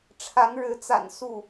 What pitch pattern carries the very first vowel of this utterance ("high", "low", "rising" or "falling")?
rising